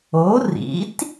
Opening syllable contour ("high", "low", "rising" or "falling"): rising